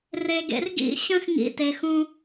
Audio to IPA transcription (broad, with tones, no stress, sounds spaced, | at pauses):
r e˧ ɡ ḛ˧ r ɡ ḭ˦˨ ɕ ə̃˦ x ŋ ḭ˧ t e˨ x ũ˧